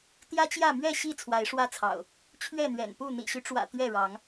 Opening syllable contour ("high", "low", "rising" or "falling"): high